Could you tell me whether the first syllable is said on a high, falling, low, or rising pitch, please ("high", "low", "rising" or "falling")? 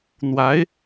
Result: rising